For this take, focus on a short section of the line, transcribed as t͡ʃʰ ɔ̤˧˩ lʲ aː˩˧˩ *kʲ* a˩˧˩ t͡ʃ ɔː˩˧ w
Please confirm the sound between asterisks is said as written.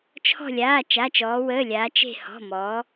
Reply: no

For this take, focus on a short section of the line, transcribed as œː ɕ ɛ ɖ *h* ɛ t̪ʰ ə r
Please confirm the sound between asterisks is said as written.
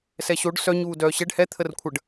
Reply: yes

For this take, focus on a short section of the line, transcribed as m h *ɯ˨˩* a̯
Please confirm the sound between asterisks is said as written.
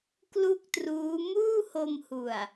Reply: no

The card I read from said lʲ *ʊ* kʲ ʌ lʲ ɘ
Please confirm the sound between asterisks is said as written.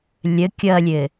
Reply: no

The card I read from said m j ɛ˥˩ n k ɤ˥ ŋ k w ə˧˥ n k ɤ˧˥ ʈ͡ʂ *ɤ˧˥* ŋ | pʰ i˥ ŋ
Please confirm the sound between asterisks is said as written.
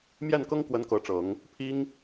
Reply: no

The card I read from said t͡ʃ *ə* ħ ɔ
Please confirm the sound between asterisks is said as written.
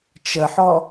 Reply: yes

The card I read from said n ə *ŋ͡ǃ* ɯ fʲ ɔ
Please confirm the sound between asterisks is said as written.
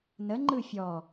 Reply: yes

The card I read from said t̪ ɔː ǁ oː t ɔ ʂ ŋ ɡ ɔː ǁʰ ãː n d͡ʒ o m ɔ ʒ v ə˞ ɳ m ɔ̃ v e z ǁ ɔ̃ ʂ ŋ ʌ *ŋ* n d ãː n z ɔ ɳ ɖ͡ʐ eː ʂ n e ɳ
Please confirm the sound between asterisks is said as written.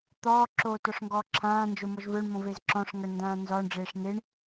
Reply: no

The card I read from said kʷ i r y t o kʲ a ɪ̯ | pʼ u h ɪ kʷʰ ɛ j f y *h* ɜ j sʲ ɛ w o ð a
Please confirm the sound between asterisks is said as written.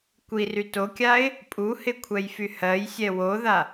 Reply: yes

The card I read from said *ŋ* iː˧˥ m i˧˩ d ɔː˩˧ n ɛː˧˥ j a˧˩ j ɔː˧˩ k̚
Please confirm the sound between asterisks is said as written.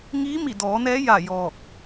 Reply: yes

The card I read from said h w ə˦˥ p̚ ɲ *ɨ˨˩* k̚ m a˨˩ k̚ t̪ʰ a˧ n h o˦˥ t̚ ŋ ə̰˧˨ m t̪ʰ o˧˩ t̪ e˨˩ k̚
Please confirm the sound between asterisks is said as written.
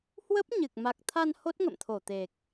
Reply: yes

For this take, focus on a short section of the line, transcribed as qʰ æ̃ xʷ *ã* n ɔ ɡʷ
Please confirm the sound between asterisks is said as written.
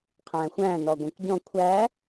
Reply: no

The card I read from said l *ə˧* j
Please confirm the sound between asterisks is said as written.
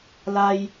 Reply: no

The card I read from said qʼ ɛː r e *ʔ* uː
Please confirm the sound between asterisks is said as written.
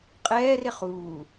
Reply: no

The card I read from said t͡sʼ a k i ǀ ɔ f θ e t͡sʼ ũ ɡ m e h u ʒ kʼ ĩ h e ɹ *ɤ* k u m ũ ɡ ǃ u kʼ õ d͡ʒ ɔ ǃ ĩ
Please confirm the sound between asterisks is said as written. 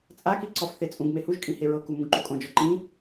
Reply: yes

